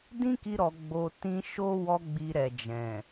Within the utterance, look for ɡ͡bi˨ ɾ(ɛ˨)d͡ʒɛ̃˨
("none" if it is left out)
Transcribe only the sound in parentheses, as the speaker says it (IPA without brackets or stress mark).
ɛ˨